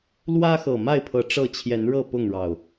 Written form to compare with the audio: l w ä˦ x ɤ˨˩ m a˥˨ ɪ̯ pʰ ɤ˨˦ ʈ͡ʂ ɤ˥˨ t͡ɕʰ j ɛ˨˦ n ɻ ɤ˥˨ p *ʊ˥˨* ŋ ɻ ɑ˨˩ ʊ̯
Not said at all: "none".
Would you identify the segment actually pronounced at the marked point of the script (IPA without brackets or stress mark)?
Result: ʊ˥˨